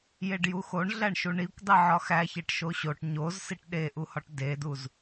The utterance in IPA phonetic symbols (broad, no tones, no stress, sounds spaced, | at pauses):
j e ɖ j u x o ɳ ɮ æ ɳ ʃ u ɳ i kʷ dˤ i ʕ ɒ x æ ç e ʈ ʃ o ɕ o ʈ ɲ o z s i ʈ ɗ e ʔ u h ɒ ʈ d e d u z